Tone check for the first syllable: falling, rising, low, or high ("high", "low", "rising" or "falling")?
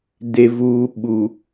low